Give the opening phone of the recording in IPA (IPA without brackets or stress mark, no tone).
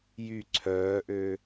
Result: j